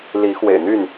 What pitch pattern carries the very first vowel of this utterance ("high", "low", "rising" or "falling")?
rising